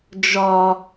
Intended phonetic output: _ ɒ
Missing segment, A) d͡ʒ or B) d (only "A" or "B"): A